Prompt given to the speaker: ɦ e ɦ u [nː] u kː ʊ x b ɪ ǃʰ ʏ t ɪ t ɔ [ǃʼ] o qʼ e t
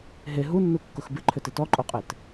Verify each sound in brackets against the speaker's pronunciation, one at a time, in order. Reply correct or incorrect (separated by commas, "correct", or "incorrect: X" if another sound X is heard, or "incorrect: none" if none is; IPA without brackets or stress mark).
correct, correct